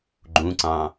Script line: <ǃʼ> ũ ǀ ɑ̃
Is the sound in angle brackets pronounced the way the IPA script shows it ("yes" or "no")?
no